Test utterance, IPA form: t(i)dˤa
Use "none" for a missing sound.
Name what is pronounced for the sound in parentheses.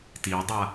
i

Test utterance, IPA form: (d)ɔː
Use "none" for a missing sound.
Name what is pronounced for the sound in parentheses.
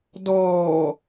d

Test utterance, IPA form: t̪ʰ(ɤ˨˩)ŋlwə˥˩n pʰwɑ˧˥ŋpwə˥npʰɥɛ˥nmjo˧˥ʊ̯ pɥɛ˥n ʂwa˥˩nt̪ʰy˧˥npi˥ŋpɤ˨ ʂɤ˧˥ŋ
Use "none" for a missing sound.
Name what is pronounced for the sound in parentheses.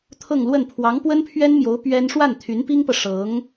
ɤ˥˧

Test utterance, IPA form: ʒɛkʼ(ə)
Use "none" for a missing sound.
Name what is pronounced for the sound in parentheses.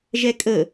ə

